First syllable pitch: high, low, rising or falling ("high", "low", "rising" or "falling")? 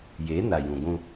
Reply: rising